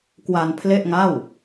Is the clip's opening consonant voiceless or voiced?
voiceless